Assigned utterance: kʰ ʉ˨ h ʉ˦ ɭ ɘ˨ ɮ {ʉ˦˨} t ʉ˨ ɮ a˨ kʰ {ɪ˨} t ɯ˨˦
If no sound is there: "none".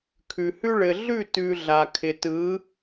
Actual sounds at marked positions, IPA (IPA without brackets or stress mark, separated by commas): ʉ˦˨, ɪ˨